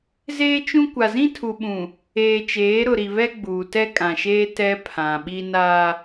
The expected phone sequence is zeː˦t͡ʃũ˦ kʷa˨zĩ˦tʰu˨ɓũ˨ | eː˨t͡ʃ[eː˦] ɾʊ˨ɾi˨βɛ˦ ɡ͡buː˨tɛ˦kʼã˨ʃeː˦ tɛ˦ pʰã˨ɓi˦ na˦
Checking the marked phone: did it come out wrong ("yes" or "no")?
yes